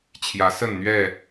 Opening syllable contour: rising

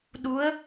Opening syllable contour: rising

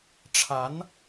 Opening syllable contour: rising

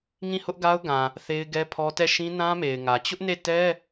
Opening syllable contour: falling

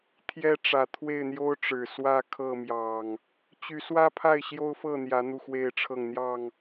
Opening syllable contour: high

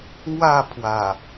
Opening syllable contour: falling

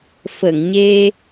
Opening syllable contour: low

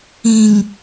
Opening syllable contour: low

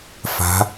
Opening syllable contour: rising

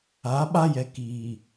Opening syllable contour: rising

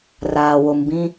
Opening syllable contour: low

